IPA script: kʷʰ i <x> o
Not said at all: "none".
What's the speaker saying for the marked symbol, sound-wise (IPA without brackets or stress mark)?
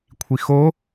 x